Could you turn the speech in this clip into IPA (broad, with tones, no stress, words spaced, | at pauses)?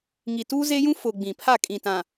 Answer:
ŋi˨tuː˦ze˦jũ˦ fʊ˨ ɡ͡bĩ˨ pʰa˦˨kʼĩ˨tã˨